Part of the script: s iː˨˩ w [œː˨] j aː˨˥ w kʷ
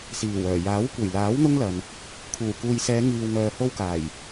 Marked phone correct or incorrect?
incorrect